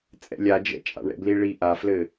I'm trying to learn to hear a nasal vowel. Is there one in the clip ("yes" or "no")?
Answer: no